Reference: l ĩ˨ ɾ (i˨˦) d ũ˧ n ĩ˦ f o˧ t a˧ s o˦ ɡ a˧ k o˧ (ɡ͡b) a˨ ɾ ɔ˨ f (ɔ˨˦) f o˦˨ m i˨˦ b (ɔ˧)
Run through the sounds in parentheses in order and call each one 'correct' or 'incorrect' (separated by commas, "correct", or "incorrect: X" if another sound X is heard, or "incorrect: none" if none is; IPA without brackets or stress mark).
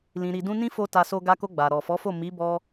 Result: incorrect: i˨, correct, correct, correct